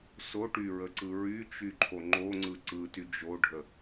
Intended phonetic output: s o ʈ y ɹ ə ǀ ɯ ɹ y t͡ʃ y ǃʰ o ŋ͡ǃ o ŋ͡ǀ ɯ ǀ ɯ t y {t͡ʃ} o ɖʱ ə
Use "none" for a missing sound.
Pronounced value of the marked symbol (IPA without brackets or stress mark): d͡ʒ